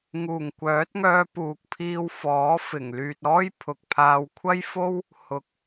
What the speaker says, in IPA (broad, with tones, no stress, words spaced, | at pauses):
ŋuː˨˩ŋkʷœː˨˥t̚ŋœː˧puː˨k̚ pʰiː˧wfɔː˨˥ fɪ˨˩ŋlyː˨t̚ɔː˥j pʰʊ˨k̚pʰaː˧w kʷʰɐ˥jfo˥w | hʊ˨˥k̚